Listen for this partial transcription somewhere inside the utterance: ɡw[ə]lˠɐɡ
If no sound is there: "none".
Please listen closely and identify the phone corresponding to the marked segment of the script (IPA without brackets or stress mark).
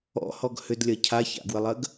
ə